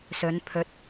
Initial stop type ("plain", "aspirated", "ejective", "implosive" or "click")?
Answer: aspirated